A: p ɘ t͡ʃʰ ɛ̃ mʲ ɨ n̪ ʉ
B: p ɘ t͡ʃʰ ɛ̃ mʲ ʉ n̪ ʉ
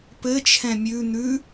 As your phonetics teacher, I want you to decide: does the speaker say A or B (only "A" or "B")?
B